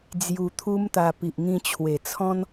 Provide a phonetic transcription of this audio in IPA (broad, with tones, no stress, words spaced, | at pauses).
d͡zju˧ t̪ʰu˦mt̪a˧ pi˨ʔŋĩ˧t͡ɕʰwe˨˩t͡sʰɔ̃˦n